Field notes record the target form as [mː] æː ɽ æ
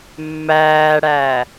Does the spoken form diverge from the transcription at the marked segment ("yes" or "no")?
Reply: no